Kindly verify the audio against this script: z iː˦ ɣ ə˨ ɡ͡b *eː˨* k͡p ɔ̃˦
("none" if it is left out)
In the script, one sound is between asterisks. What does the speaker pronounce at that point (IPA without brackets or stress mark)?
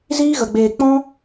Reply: eː˨